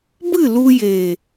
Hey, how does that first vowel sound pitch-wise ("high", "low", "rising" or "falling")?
falling